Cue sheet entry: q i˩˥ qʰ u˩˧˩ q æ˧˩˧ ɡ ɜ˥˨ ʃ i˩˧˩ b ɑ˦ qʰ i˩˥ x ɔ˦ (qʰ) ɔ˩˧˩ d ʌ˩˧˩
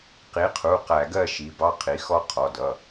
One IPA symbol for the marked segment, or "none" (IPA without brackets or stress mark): qʰ